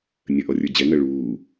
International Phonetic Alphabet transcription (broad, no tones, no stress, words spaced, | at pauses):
nʲəʔɔ rʲə˞d͡ʑɛŋɜ ɭuː